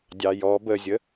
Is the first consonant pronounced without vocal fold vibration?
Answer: no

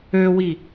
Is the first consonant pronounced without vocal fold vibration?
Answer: no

